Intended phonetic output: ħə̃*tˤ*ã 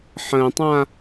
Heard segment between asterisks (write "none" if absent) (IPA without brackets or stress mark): tˤ